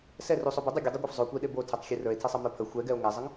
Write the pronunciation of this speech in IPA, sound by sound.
s ɛ r u sˤ o b ə dˤ u ɡʲ ə dˤ o ɡʷ ɛ f zˤ o kʷ e ɗ e b o tʰ e tˤ xʲ e r ə˞ e̯ tʰ e sˤ ɤ m ə˞ pʰ ə xʷ ɛ ɡ ɛ o̯ ŋ ɛ zˤ ə ŋ

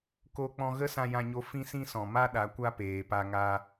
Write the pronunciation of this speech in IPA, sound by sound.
k o˧ k͡p ɔ̃˧ ɣ ə˦ s ã˧ j ã˧ ɲ o˧ f ĩ˦ s ĩ˦ s ɔ̃˨ m a˦ ɗ a˨˦ kʷ a˦ p eː˨ p a˧ ŋ a˧

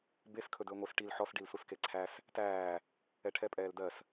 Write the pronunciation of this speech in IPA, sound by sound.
b e s kʰ ɵ d ɵː ŋʷ e s ʈ i l ħ ɔ s ɖ i l s u s k e ǀʰ æ s | t æː | ɛ ʈʰ ɛ pʼ ɛː l d ɜ s

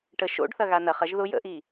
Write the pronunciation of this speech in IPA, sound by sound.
ʈ ə ʃ o̰ ɖ θ ɐ ɣ a n ɐ χ ɐ ʒ ð ʊ j ə̰ ʔ i

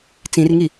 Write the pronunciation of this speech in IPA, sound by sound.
t͡s ĩ r ŋ i

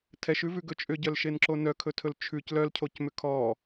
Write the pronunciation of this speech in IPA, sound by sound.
tʰ ɛ ʃ ʉ v ʉ ɡ ɵ t͡ʃʼ ʏ ɟ œ l ʃ e n ǁ o n œ kʰ ɵ tʰ ɵ l t͡ʃʰ ʉ c l œ l cʰ o c m ʏ kʰ ɔ

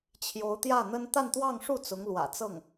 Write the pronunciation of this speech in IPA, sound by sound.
t͡ɕʰ j o˧˥ ʊ̯ t̪ j ä˥˩ n̪ ə˥ n t̪ a˥˧ n t̪ w ɑ˥˧ ŋ ʂ u˥˩ t͡s ʊ˧˥ ŋ l w ä̰˨˩ t͡s ɤ˥˩ ŋ

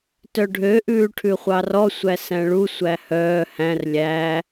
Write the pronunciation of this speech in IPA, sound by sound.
t œ ɖʱ ø ʔ ʉː ʈʰ ʉ χʷ ɑ r ɔ sʷ æ s æ̃ ɭ u sʷ æ h œː h æ̃ r lʲ æ

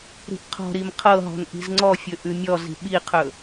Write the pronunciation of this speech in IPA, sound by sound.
ɾ i̤ ʔ qʰ ɔ̤ ɾ i m qʰ ɤ ɦ ɔ̤ n ʔ i̤ z ŋ͡ǀ ɔ fʲ ɵ ʔ ʉ mʲ ɔ z i̤ ɓ i qʰ ɵ

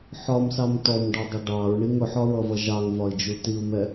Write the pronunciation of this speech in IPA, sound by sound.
ħ ɒ m s ɑ m t ɔ m ɖ ɒ dˤ ʊ ɖ ɑ ɹ ɳ i ŋ ʊ ħ ɒ ɹ ʌ v ʌ ʒ ɑ ŋ v ɒ i̯ d͡ʒ u t i u̯ m ɛ

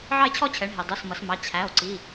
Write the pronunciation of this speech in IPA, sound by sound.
ʕ ɑ˥˧ e̯ t͡ɕʰ ɔ˥˧ t͡ɕʰ ɛ˩˧ ɳ ɦ i˩ dˤ u˩˧˩ s m ʌ˩˧ s m ɑ˩˧˩ t͡ɕʰ æ˩˧˩ o̯ ǀ i˩˧˩

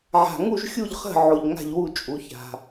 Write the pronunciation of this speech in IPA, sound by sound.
ʕ a̤˨˩ ŋ u˥˨ ʒ xʲ u˥˨ ʎ χ ə̤˥˨ ʕ o˨˩ ʎ ŋ a̤˥˨ ʎ w u˥˨ t͡ʃʼ u˨˩ ç a̤˨˩

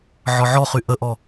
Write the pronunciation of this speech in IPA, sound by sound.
ʕ ɒ ʕ ɔ χ y ʔ ə ʔ ɔ

